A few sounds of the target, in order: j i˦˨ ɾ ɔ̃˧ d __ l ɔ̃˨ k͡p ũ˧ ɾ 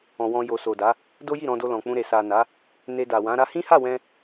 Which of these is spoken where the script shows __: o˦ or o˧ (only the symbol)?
o˧